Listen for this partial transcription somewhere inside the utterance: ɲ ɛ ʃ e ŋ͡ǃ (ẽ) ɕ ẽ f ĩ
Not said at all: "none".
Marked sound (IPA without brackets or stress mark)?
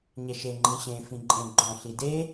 ĩ